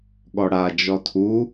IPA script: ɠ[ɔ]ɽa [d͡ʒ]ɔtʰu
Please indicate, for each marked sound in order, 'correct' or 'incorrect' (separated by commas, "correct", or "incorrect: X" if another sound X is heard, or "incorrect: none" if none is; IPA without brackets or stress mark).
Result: correct, correct